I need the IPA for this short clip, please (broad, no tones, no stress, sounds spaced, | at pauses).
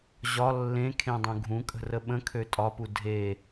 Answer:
ʑ ɒ lː ẽ kʰ ẽ dˤ ũ ɡʱ ũ kʼ ə̤ r ə ɓ ə̃ kʰ ø tʼ ɒ p u dʱ e